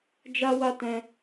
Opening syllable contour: high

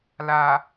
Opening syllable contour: low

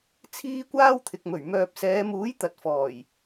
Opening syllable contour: high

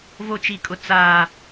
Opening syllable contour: high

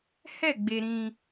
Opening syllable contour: falling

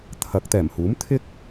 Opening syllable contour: rising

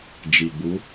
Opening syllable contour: low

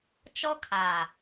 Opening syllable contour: high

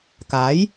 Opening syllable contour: rising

